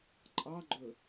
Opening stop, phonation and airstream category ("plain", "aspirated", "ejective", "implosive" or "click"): click